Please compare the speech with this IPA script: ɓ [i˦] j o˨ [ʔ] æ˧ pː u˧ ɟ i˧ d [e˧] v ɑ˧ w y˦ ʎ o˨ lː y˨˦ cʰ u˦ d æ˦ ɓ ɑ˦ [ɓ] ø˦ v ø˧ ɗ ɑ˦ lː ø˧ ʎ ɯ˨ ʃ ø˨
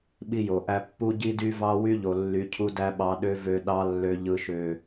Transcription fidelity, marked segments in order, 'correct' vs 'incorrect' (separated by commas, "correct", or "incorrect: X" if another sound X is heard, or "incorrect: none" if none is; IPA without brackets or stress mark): incorrect: i˧, correct, incorrect: y˧, incorrect: ɗ